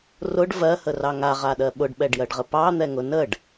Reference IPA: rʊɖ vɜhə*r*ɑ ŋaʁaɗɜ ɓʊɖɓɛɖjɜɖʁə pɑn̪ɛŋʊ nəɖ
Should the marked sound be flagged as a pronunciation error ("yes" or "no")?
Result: no